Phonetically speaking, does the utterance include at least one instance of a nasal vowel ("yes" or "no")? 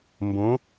yes